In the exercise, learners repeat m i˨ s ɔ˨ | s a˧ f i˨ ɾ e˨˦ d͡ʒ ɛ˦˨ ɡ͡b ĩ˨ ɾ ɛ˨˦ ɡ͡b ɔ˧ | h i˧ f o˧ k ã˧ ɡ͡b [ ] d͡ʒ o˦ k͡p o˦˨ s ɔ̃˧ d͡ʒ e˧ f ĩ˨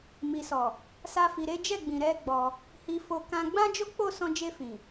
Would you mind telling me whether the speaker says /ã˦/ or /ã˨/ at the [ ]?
ã˦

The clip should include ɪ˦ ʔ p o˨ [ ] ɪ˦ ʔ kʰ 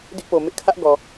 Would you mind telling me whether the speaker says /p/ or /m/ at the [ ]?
m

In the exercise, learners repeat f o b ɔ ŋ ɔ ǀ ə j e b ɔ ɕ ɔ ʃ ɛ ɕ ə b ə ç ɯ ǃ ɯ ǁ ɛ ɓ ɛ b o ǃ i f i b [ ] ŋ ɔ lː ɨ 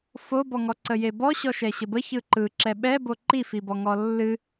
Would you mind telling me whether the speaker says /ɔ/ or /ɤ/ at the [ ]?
ɔ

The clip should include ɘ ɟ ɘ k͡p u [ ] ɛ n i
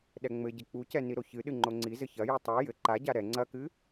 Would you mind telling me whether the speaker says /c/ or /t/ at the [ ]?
c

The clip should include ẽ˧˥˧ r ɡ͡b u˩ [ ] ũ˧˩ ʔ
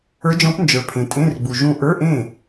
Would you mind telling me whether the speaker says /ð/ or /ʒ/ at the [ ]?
ʒ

